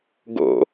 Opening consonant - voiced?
yes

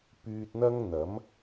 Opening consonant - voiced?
no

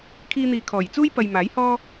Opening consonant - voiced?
no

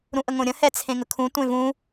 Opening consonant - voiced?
yes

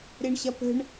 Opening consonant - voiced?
yes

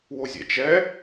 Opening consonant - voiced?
yes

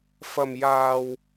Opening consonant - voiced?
no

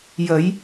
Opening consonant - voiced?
yes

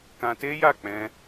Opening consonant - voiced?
no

